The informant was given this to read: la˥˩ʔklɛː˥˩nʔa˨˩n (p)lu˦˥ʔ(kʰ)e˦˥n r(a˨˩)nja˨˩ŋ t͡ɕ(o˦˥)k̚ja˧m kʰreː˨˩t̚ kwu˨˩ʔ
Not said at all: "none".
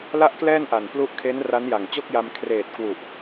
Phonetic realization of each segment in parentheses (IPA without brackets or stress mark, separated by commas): p, kʰ, a˦˥, o˥˩